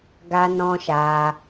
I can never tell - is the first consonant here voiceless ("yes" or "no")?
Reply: no